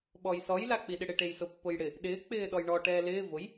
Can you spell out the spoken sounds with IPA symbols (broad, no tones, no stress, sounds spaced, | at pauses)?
ɓ ɔ j s ɔ j l a k͡p i ɗ ɪ ɽ ɪ ʈ e j s ʊ pː ʊ j ɽ ɪ | ɗ ɪː k͡p ɪː ɗ ɔ j ɳ ɔ ʈ ɛː l ɪː v ʊ j